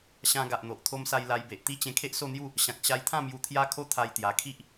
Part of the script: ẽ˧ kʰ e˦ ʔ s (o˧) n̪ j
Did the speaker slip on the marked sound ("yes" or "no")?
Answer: yes